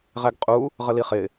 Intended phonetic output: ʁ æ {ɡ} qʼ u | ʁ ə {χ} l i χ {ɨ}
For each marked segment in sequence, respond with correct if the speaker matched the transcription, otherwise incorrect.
correct, incorrect: none, incorrect: ɪ

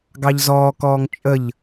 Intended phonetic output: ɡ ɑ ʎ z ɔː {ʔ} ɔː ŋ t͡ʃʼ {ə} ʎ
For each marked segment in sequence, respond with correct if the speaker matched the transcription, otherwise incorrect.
incorrect: k, correct

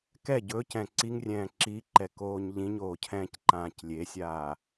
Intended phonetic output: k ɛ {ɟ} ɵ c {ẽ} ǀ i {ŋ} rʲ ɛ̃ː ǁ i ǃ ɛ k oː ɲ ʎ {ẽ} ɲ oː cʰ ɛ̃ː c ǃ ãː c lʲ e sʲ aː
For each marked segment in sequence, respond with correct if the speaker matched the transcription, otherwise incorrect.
correct, incorrect: ɛ̃, correct, incorrect: ĩ

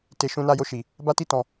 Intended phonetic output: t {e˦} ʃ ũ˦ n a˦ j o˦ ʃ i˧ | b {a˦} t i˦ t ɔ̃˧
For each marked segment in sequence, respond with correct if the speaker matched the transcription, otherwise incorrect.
incorrect: e˧, correct

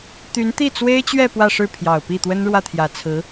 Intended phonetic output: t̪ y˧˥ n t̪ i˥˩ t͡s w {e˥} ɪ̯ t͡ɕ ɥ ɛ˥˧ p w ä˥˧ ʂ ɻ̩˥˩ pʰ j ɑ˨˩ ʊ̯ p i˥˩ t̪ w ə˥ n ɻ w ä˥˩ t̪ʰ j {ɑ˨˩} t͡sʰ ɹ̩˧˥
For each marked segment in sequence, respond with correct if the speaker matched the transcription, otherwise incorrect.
correct, incorrect: ä˨˩

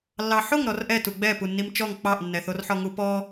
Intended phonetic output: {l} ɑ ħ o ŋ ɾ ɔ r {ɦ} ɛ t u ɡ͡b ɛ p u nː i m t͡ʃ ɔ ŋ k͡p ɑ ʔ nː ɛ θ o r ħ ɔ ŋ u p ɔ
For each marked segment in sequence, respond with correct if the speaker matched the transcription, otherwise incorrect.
incorrect: lː, incorrect: ʔ

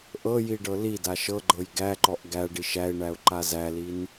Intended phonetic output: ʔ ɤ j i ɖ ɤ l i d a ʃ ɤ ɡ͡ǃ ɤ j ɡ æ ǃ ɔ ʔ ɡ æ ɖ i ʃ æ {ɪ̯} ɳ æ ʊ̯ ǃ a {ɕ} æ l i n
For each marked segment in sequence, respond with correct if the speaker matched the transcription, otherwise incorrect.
correct, incorrect: z

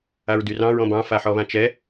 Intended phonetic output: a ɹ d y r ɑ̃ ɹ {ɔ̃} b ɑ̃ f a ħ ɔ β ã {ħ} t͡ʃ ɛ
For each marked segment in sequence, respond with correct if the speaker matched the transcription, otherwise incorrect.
correct, incorrect: none

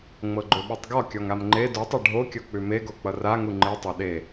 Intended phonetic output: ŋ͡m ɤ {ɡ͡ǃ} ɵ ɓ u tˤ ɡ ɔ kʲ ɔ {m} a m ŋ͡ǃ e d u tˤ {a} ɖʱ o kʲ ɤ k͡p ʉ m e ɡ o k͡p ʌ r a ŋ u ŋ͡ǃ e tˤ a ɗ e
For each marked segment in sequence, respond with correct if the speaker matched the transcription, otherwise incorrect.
correct, incorrect: ŋ, correct

